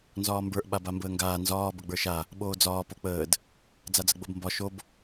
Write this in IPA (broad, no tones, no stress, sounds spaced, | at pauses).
n z ɒː m b ə˞ ʔ ɓ a b a m b əː ŋ ɡ aː n z ɒː b ə ɡ͡b ə˞ ʃ a | ɓ oː d͡z ɒː p o k͡p əː d | d͡z a d͡z ə ɡ͡b o b m b ɒ ʃ o b